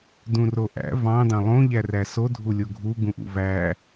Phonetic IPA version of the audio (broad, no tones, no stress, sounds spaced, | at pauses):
d ũ r o ʔ æ̰ v ɑ̃ d ɑ̃ lˠ õ ʎ æ r æ s o dʱ u lʲ o ɡʱ u ɡ ũ ʔ ṵ v æ